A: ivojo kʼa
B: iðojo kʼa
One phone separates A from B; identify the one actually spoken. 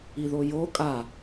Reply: B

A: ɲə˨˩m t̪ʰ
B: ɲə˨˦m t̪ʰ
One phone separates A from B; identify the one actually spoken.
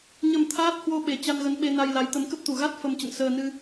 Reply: A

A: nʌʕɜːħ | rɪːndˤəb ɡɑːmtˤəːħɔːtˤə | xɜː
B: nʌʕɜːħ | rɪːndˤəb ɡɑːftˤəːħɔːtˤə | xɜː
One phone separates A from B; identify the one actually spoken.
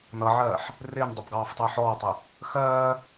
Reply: B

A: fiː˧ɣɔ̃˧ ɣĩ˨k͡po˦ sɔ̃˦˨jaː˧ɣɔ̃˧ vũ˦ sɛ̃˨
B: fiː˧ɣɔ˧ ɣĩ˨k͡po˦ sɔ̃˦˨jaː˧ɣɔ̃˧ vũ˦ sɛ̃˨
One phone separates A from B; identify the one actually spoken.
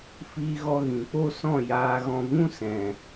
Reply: B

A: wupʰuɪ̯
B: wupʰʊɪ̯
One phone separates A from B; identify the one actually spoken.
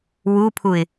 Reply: A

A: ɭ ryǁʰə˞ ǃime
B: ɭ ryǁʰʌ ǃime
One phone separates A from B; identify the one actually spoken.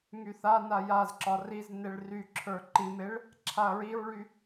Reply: A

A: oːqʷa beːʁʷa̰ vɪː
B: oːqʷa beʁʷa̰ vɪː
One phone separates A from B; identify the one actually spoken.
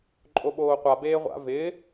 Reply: A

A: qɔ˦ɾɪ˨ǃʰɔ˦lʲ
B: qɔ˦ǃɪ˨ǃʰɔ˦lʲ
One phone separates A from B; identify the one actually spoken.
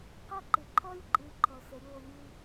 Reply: B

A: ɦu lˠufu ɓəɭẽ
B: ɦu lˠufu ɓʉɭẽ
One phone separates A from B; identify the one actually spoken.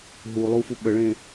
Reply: A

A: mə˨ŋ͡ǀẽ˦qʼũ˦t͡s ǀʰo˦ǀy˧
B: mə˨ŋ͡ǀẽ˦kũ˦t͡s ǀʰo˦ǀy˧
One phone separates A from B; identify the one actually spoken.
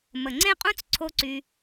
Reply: A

